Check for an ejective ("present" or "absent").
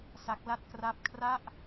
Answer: absent